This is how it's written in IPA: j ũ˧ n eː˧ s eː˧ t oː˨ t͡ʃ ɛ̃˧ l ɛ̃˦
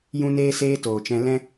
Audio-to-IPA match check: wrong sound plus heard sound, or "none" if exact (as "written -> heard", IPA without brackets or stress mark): none